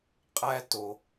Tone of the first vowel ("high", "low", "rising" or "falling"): high